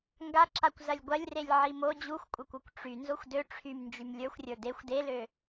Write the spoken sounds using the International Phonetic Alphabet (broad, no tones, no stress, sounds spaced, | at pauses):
ŋ ɡ a ǁ a kʷ z ɐ lʲ ɡʷ ɐ lʲ r e lʲ ʕ i m o d͡ʑ u xʷ kʷʼ ɐ kʷ o kʷ ʈ͡ʂ y n z o xʷ d ø ʈ͡ʂʰ y m n d͡ʒ y m lʲ ə˞ xʷ rʲ ə˞ d e xʷ d e l ø